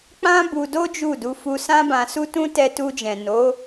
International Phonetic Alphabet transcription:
k͡p ã˦ b u˧ d o˦ d͡ʒ u˦˨ d u˧ f u˧ s ã˦ b ã˧ s u˦ t ũ˦ t ɛ˧ t u˧ d͡ʒ ɛ̃˨ n o˨˦

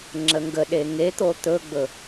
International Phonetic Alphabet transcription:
ŋ͡ǁ ə ŋ ɡ ə ɗ e ŋ e t̪ o t̪ ɵ ɡ͡b ɵ

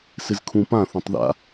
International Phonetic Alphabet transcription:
s ɪ z kʰ ũ p ã θ ũ tˤ ð a̰

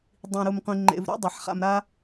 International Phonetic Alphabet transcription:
dˤ ĩ˨ ɾ u˨ m qʷ ĩ˨ ŋ͡ǃ ḛ˨ v ɾ ṵ˦ dˤ a˨ ħ χ a̰˨ m ɾ a˦

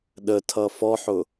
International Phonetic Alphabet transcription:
ɗ ə tʰ ʌ f ɔ ħ ʊ

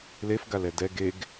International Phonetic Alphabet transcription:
l e f ɡ a l ɛ d ɛ ɡ e ɡ

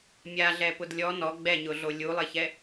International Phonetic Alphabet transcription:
mʲ a ɮ ɛ p ʊ d lʲ ɔ n ɔ ɡ͡b ɛ ɲ ʊ ɮ o lʲ u lˠ ɪ ç ɛ

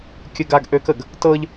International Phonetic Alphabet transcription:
kʲ ə ɡ a ɡ ʔ ø k ə ɡ | t ɤ ʎ

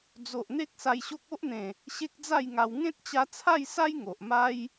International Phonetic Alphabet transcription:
d͡z o˨ ʔ n̪ e˦ k̚ s a˧ j ɕ o˦ k̚ o˦ ʔ n̪ ẽ˨˩ | ɕ e˦ k̚ d͡z a˥˧ j ŋ a˧ w ŋ ẽ˦ t̚ t͡ɕ a˧ t͡sʰ a˥˧ j s a˦ j ŋ o˨ ʔ m a˦ j

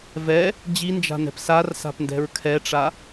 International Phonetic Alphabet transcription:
v ɛ | d͡ʑ i n d͡ʒ a̤ n ɛ̤ p s a r s a̤ p n d ɛ̤ ɹ kʰ ɛ ʈ͡ʂ a

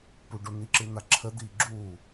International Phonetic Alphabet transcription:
p u ɖ o n̪ i ǁ ɨ n̪ a ǁʰ ə d̪ iː ɡ͡ǁ u

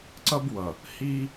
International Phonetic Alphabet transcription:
ǀ ʌ˦ b w ʌ˨ | h i˦

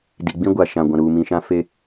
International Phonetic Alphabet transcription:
d i˨ ɡ͡b ĩ˦ ɡʷ a˨ ʃ ã˨ ɡʷ ã˨ ɾ uː˨ m ĩ˨ ʃ ã˦ f e˦

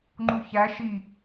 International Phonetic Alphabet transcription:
ŋ͡ǃ u ç æ ʃ i

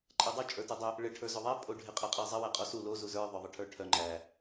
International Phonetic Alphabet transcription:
ǃʼ æ dˤ o t͡ʃʼ ə˞ t o dˤ œ | ɭ ɪ ʈʰ ə˞ z o ðˤ æ pʼ o ɖʱ ɪ qʼ æ qʼ æ zˤ ɪ w æ qʼ ɔ s u l o z u z ə˞ ðˤ œ ðˤ ɪ ʈʰ ə˞ ʈʰ œ ŋ͡ǃ æ

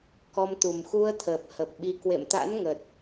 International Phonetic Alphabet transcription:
k ɔ˧ m t̪ u˨˩ m x u˧ ə̯ t̪ʰ əː˨˩ p̚ h ə˨˩ p̚ ɓ i˧ k w ḛ˧˨ m t̪ a̰˧˥ n ŋ əː˨˩ t̚

